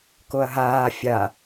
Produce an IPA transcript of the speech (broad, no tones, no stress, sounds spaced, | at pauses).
k o ɐ̯ ɦ aː fʲ a